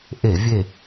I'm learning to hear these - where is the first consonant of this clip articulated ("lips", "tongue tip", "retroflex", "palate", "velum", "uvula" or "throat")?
throat